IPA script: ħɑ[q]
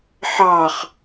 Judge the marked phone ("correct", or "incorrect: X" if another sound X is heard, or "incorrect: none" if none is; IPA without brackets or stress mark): incorrect: χ